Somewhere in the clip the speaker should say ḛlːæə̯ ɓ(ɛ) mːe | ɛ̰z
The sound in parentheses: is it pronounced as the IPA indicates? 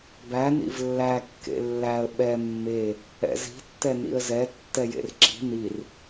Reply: yes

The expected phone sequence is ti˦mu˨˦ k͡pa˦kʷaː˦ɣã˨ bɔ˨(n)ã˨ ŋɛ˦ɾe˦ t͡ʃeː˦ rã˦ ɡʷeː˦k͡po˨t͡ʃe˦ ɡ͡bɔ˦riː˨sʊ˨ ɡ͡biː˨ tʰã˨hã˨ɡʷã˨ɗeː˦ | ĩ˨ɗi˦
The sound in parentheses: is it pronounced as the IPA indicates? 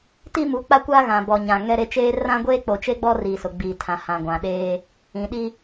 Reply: no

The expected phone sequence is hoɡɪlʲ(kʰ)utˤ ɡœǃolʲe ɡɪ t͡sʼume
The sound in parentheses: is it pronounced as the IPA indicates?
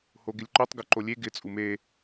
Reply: no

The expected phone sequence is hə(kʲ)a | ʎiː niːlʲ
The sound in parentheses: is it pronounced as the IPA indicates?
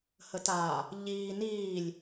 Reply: no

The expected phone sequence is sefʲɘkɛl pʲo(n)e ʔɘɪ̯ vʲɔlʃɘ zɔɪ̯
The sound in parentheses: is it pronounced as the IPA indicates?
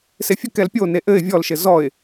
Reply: yes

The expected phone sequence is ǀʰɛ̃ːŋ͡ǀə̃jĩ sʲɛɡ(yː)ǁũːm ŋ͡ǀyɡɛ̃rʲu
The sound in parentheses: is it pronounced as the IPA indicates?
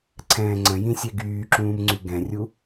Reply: yes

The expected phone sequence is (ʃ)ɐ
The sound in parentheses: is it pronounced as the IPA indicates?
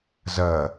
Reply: no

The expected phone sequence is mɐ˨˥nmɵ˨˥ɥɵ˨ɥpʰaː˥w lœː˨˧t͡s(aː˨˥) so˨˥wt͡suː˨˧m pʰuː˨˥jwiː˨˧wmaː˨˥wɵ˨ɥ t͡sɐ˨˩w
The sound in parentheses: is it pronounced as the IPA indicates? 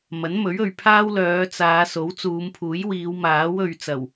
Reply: no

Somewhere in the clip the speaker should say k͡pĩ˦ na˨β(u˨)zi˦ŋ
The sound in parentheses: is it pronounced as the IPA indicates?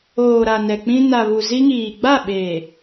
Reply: yes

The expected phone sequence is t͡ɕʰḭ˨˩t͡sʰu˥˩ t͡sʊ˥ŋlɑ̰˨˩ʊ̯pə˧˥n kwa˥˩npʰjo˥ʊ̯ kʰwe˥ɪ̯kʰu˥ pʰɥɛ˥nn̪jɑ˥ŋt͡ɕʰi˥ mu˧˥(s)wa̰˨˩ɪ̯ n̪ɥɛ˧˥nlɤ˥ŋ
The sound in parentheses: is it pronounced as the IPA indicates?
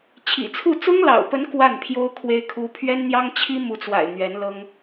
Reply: no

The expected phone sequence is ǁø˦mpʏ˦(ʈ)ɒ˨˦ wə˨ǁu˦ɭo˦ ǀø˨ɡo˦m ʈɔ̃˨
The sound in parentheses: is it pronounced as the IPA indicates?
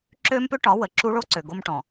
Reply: yes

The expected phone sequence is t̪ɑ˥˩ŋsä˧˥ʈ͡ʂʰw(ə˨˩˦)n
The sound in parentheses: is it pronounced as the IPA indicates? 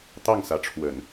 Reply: yes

